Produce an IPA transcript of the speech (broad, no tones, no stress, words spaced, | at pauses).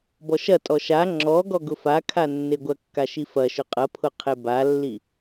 bɔʃɐtʼɔ ʃa ŋ͡ǁɔ ɡɔɡʊfakʰa nːeɡʷɐkːa ʃifɐʃʊ qʼɐpʰʊ qʰebalːi